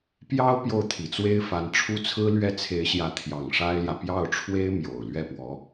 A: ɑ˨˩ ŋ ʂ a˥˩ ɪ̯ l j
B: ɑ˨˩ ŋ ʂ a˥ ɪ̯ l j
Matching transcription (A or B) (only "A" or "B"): B